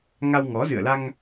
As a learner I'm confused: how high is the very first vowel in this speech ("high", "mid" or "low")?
low